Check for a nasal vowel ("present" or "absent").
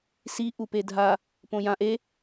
present